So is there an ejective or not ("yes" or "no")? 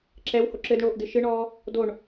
no